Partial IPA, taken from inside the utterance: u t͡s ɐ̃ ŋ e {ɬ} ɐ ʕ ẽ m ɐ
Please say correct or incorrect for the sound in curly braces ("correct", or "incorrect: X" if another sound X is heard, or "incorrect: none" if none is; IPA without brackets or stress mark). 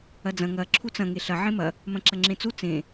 correct